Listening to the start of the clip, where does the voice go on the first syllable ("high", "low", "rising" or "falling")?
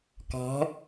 rising